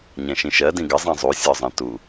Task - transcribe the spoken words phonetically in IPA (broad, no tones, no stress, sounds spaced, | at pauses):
ɲ ɛ̃ ʃ ĩ ʃ ɜ d ĩ ɡ ə zˤ ĩ zˤ u sʲ ɔ zˤ ɛ̃ t u